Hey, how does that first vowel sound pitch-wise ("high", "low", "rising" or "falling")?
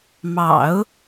low